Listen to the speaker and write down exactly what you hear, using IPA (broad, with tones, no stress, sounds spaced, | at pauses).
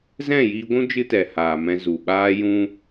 z ɛ̃˦˨ j iː˧ ɡʷ ũ˦ d͡ʒ ɨ˦ t ɛ˨ h aː˨ m ɛ̃˧ z u˨ ɓ aː˦ j ũ˦